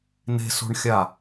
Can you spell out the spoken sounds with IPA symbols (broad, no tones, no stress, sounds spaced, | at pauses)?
n e̤ s o̤ ɳ xʲ a